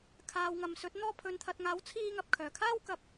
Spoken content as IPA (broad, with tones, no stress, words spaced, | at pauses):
kʰaː˨wŋɐ˨˧msɵ˨˥t̚ n̪ɔː˧pʰɵ˨nt̪ʰɐ˨t̚ŋaː˨˥w t͡sʰiː˧ŋɐ˨p̚ kʰœː˨˩kʰaː˥w kɐ˧p̚